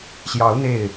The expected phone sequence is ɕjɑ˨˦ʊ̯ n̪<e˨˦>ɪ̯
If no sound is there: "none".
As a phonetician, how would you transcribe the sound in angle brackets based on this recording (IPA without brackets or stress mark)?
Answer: e˥˨